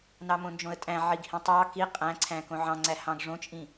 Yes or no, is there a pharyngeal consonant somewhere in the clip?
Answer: yes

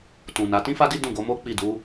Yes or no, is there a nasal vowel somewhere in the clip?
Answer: yes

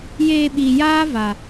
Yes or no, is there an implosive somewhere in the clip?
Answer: yes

